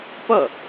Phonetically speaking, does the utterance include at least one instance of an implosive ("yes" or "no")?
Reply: no